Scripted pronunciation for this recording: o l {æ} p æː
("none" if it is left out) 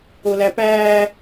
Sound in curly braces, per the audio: æ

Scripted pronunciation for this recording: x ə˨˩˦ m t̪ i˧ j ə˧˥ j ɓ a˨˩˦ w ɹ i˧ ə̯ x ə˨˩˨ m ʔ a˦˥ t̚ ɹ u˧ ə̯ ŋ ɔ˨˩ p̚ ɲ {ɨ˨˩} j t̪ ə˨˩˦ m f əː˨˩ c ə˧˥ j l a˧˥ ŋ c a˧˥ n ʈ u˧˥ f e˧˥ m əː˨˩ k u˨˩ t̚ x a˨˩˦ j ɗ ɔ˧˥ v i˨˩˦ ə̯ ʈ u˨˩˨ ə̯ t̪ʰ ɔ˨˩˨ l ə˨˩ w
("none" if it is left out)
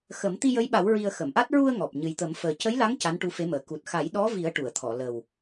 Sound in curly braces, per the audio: ɨ˨˩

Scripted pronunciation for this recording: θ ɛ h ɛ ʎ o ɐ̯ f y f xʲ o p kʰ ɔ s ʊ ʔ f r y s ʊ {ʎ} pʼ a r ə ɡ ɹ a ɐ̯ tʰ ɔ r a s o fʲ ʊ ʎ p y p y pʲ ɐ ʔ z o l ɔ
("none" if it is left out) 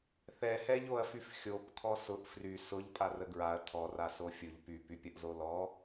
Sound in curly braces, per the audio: ʎ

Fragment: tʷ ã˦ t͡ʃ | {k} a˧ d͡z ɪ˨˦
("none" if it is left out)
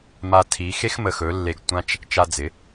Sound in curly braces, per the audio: t͡ʃ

